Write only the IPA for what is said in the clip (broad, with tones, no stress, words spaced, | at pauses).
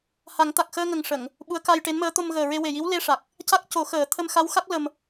ha˨˩˦ŋt̪a˨˩k̚ xəː˧ŋə˨˩ŋ ʂə˨˩˨ŋ | ɓu˧˥ə̯ka˧jʈe˧˥nməː˧˥ t̪o˧mɣəː˨˩ɹe˧ we˨˩ji˧˥w le˧ʂa˨˩k̚ | ca˦˥k̚co˨˩˦ xəː˨˩˦ t̪ʰə˧mxa˧˥wxa˦˥k̚ lə˧m